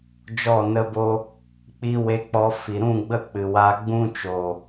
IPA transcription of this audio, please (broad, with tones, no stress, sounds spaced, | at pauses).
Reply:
d͡ʒ ɔ˦˨ n ə˦ b o˦ | k͡p iː˧ w e˧ k͡p ɔ˧ f i˨ ɾ ũ˦˨ ɡ͡b ə˦˨ k͡p ɨ˨ w aː˧ ɡ͡b ũ˦ t͡ʃ o˨